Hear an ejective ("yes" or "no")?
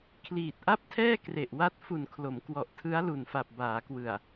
no